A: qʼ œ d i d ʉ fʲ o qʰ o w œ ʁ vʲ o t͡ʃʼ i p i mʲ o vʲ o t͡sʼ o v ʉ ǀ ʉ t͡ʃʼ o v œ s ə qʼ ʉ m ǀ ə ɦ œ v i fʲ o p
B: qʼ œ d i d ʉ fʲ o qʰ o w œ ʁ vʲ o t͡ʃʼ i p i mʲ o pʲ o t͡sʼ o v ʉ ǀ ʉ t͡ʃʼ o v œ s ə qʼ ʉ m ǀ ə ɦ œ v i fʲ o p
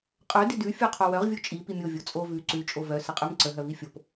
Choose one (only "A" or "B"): A